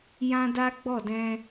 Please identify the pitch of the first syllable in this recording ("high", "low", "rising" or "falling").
high